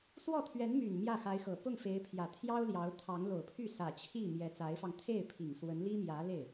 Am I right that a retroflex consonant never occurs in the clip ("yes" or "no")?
yes